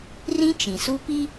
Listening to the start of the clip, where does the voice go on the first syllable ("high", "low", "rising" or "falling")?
high